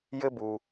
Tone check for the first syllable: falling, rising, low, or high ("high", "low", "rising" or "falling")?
high